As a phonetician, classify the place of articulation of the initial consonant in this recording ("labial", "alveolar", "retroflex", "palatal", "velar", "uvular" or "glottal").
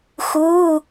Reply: velar